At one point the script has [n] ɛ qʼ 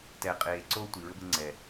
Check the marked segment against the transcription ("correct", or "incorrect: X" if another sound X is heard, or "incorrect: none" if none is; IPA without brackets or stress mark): incorrect: t